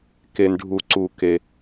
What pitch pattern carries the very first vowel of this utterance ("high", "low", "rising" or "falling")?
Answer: low